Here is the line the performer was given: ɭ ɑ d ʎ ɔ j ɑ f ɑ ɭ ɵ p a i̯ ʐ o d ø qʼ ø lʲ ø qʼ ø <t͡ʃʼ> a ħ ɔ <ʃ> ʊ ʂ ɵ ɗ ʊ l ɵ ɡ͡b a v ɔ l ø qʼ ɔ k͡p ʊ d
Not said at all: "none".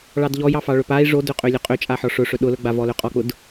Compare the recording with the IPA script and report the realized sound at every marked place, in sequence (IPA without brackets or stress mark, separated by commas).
t͡ʃʼ, ʂ